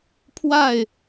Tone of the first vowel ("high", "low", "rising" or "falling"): falling